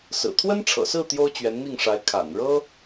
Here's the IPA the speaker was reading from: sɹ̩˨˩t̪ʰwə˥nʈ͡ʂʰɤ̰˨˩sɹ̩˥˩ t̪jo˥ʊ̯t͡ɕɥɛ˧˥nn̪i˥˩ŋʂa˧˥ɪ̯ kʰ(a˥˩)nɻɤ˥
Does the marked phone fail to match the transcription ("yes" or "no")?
yes